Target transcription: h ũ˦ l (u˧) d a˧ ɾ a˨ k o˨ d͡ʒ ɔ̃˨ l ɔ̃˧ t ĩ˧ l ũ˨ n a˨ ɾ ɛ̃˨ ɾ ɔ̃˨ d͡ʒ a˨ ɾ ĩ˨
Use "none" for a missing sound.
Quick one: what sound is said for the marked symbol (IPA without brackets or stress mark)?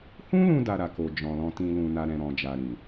ũ˧